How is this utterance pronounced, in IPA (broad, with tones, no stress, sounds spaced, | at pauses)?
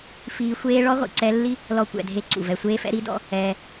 f iː˦ xʷ eː˥ ɭ ɔ˥ ʁʷ ḭ˨ ǀ ɛ˦ lː i˥ | l ɔ˦ kʷ ɛ̰˨ dʱ e˦ ǀ ṵ˩ v ɛ˨ sʷ eː˥ f ɛ̰˥ ɾ i˦ d ɔ̰˦ | ɛː˨